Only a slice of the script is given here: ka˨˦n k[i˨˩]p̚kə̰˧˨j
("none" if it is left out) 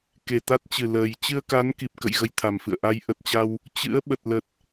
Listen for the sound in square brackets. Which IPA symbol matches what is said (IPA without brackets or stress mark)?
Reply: i˨˩